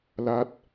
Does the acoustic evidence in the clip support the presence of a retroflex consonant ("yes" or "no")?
no